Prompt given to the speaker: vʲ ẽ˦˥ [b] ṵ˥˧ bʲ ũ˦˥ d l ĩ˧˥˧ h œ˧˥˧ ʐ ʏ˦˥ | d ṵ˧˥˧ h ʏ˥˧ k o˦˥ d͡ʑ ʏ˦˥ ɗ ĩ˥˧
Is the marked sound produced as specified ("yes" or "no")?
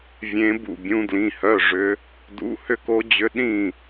yes